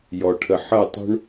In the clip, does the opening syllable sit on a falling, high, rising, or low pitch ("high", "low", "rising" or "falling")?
low